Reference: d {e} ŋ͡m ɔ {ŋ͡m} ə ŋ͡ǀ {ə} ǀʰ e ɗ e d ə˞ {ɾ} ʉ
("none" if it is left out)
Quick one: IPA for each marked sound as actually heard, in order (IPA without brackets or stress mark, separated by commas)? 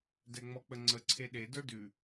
ɛ, k͡p, ə, d